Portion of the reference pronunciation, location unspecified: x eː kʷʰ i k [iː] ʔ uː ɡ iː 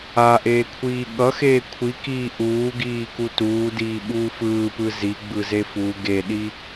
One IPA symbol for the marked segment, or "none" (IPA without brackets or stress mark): iː